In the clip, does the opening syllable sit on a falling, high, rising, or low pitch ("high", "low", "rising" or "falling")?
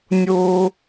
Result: high